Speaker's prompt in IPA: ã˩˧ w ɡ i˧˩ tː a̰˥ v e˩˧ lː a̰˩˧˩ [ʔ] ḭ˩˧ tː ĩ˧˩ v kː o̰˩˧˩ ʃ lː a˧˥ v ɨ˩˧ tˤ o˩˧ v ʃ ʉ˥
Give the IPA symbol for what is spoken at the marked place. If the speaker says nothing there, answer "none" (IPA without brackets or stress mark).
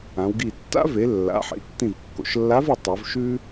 ħ